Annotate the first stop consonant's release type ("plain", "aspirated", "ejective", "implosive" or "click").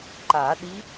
click